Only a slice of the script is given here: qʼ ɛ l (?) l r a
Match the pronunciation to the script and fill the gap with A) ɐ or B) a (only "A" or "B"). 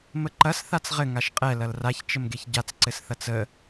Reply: A